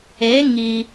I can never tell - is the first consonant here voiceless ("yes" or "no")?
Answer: no